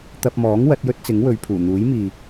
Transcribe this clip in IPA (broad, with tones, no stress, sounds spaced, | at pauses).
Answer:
t̪ ɐ˧ p̚ m ɔː˨˥ ŋ w ɐ˨˥ t̚ j ɵ˥ t̚ t͡s ɪ˨˥ ŋ w ɵ˨˧ ɥ pʰ uː˨˩ n̪ uː˨˥ j m iː˨